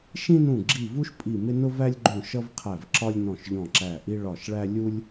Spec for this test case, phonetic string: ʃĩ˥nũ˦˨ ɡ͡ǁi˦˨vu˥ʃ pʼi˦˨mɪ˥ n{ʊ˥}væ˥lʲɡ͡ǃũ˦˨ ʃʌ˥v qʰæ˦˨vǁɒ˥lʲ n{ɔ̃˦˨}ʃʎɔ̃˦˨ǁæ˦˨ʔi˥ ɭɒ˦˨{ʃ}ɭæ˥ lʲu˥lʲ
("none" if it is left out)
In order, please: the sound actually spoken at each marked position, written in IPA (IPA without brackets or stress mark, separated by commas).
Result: ʊ˥, ɔ̃˦˨, ʃ